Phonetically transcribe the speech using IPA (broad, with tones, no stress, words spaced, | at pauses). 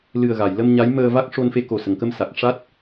lɨ˨˩ə̯ɣa˨˩˨j lə˧mɲa˧˥j məː˧va˦˥k̚ ʂo˧nfe˧ko˨˩ sə˨˩˨ŋkə˧m sa˨˩k̚ʂa˦˥t̚